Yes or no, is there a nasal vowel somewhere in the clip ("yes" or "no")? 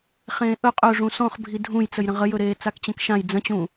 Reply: yes